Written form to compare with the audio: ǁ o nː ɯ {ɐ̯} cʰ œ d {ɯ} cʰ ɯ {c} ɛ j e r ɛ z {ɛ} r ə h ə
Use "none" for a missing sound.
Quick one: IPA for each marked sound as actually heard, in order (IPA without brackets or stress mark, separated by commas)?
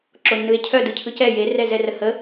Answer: e̯, ɯ, c, ɛ